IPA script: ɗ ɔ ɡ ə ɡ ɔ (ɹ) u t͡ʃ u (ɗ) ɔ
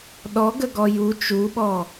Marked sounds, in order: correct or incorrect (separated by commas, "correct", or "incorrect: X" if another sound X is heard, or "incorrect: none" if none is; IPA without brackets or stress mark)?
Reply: incorrect: j, incorrect: ɓ